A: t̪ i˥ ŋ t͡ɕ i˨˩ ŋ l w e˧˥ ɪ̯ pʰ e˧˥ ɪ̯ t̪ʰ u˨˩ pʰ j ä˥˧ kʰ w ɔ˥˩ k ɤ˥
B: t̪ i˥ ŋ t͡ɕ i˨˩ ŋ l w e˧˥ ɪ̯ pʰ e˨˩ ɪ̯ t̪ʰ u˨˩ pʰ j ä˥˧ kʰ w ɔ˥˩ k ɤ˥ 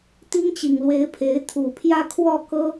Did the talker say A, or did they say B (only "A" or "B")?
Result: A